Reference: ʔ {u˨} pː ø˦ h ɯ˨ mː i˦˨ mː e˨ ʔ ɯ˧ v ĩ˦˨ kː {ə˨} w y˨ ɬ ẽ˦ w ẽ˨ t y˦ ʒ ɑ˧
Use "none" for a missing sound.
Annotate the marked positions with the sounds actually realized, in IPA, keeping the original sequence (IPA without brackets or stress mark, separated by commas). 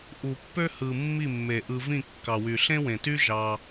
u˨, ɑ˨